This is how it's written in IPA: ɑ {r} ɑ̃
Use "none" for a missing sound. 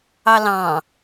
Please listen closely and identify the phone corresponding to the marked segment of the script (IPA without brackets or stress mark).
l